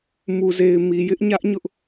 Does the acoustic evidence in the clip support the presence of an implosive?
no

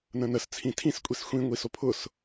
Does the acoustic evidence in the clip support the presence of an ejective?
yes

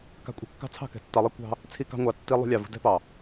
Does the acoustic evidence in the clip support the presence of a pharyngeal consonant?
no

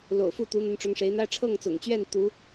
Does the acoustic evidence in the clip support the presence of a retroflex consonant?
yes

